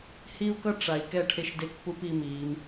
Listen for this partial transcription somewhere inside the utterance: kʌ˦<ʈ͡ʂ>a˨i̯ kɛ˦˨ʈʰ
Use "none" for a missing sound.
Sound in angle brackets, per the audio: ʈ͡ʂ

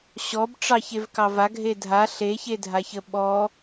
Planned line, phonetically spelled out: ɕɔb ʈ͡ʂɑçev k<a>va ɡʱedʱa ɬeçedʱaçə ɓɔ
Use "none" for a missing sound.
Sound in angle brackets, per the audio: ɑ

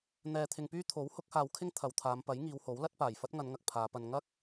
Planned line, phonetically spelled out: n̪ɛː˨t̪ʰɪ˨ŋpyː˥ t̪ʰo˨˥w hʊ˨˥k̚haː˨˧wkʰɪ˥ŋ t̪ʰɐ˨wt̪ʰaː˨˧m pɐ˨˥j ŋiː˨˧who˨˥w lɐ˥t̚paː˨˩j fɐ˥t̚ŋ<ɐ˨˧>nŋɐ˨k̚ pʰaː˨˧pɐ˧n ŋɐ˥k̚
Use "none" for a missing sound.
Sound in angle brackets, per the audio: ɐ˨˧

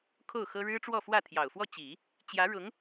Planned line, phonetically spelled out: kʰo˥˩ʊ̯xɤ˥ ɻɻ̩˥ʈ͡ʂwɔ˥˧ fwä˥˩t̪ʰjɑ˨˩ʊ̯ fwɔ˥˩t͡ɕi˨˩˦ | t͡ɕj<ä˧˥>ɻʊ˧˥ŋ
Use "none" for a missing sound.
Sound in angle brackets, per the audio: ä˧˥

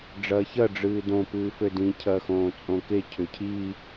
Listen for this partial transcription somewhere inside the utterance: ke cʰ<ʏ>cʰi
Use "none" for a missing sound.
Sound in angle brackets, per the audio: ʏ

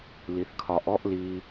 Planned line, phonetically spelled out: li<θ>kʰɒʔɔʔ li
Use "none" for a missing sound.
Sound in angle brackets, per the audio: θ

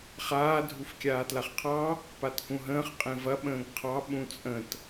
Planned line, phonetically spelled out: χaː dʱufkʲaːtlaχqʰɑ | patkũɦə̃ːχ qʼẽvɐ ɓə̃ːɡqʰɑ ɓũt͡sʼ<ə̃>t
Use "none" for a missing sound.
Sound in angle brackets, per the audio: ə̃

